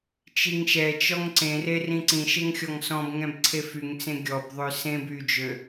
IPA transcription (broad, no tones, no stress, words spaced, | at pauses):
t͡ʃiŋʃɛt͡ʃɔŋ ǀẽre rĩǀĩʃeŋ xʲɔŋsɔ̃bŋɛ̃b ǀʰefyŋt͡sẽ ɡʲɔbðˤø sẽb yd͡ʒø